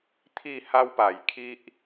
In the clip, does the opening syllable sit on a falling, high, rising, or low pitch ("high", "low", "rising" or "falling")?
falling